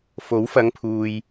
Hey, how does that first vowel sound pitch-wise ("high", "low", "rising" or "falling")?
rising